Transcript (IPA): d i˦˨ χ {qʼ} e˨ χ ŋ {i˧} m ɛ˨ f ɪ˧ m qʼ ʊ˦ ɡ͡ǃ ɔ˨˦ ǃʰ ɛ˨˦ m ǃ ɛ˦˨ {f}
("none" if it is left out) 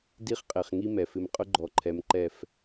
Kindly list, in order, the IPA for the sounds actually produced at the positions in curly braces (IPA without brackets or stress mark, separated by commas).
qʼ, i˦, f